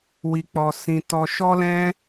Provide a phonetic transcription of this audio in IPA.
wi˧k͡pɔ˧sĩ˧ tɔ˧ʃɔ˦lɛ̃˦

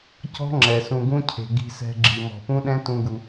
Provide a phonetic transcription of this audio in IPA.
cɔ̤˦ ŋ͡ǁɛ˨ sũ˨ɡũ˦cʰe̤˨ ɡi̤˧sɛ̤˧ɡ͡ǁi˨ mɔ̤˨pũ˦ɗɛ̃˦ tũ˦ɡu˧

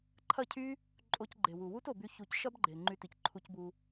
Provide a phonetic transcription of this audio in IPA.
ǃʰɐ˦˨cʰy˦ | ǃʼo˧cɡ͡ǃe˨wu˨ wu˦to˨by˧ çu˧c ʃɐ˦bɡ͡ǃe˨ ŋ͡ǃy˧ti˨c ǃʰu˧cbu˧

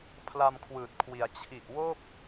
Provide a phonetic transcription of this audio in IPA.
pʰla˧mkʰwɯː˨˩t̚kʰwi˩˦a̯ t͡ɕʰi˨˩ʔwo˥˩k̚

